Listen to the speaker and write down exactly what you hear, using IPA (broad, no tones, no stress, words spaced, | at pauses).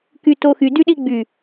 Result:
kytoxy dyɗiɡ͡by